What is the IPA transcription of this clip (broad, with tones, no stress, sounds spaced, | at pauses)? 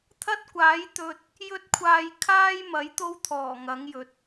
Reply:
t̪ʰ ɐ˥ t̚ kʷ aː˨˥ j t̪ ɵ˧ t̚ | j ɵ˥ t̚ kʷʰ aː˧ j kʰ aː˥ j m ɐ˨˥ j t̪ o˥ w t̪ʰ ɔː˨˩ ŋ ɐ˨˥ ŋ j ɵ˨˥ t̚